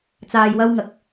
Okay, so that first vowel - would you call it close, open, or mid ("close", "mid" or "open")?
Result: open